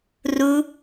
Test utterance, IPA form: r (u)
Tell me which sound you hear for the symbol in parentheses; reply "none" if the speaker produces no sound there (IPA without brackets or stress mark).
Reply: u